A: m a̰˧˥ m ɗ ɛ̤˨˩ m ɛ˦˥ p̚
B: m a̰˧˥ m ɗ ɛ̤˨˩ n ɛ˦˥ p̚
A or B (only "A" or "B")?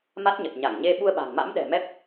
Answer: A